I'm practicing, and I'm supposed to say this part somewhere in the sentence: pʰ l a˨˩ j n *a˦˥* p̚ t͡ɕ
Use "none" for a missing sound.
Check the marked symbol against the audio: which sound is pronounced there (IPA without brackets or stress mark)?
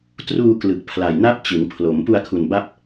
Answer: a˦˥